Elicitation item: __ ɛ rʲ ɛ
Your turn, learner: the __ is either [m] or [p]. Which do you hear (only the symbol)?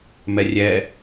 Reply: m